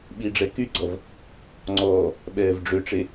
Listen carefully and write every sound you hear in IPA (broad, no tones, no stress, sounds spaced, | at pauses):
ɓ i ɖ͡ʐ ɛ k y ɡ͡ǀ ɔ v | ŋ͡ǀ ɔː | ɓ ɛː v ɖ͡ʐ ø ʈ͡ʂ e